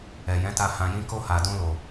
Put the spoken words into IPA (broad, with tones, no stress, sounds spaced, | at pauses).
ɛ˨ j ɛ̃˨˦ t a˧ h ã˨ j ĩ˧ k o˧ h a˨ d ũ˧ l o˨